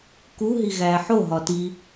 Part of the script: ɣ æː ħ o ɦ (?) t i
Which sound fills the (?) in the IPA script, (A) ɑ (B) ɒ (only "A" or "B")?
B